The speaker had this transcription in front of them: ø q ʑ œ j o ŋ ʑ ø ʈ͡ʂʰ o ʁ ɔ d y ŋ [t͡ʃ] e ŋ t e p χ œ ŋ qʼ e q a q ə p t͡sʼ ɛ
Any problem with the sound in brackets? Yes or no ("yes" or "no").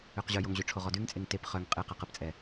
yes